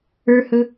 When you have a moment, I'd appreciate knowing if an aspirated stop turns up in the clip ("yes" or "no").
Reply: no